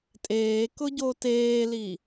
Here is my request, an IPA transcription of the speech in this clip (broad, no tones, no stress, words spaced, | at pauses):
tʼeːkʊ ɟoteːli